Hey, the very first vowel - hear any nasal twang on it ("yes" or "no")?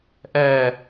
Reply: no